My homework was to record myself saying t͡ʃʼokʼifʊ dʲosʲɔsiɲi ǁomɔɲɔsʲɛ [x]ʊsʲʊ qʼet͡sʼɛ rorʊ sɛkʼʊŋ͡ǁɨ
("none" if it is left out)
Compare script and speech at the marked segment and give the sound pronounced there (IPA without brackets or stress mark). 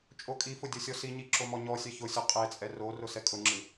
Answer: ç